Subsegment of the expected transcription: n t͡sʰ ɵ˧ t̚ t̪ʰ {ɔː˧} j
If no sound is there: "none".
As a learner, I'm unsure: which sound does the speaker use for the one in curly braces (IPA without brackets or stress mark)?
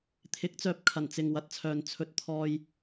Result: ɔː˧